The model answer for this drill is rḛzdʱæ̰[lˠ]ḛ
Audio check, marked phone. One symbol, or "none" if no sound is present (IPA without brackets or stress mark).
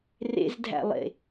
lˠ